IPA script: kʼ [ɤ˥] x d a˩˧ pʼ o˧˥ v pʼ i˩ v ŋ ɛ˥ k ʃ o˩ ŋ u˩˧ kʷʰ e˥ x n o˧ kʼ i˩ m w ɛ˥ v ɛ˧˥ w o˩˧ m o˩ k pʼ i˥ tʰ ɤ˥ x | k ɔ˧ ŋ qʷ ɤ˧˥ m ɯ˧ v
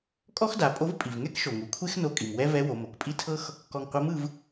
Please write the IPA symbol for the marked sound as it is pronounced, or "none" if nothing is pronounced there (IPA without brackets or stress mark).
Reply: ɔ˥